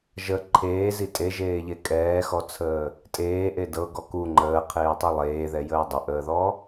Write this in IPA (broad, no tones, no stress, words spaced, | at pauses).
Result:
ʒə ǃʰeːzi tʼeʒeːʎe kʼɛːxɔt͡sʰəː | tʼeːʔe dɤɡɔ ku ŋ͡ǃəːqʰeːtˤi lˠeːðɛjəː dˤəʔəːðɔ